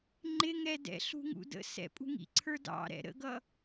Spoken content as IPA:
ŋ͡ǃ ɪ ŋ ɛ d ɛ̰ ɬ ṳ ŋ ṵ d ə̰ s ɛ̰ pʼ ṳ ŋ ḭ ǀʰ ə˞ d ɑ̰ ɾ ɛ̰ ɾ ə̰ ɡ ʌ

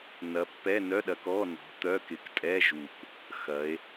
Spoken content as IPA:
n ɐ˨˦ pː ɛ˧˥˧ n œ˧˥˧ ɗ ɐ˨˦ k ɔ˧˥˧ n ɔ̤˨˦ t̪ œ˧˥˧ k ɪ˨˦ k tʼ ɛ˧˥˧ ʒ u˨˩ k | x ɐ˨˦ e̯

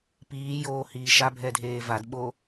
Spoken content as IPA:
p iː j oː h iː ʃ a bʱ ɛ dʱ eː v a d ɓ o

